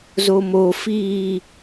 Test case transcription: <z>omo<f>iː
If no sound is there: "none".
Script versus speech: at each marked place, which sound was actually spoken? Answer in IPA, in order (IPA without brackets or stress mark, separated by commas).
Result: z, f